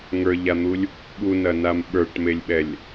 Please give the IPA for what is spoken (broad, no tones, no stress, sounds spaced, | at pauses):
ŋ ə˞ ʎ a n̪ u lʲ | ɓ u n ɐ n a m ɓ ə˞ ʈ m e lʲ ɓ ɛ lʲ